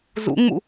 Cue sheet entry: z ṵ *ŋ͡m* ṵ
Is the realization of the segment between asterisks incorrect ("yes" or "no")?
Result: no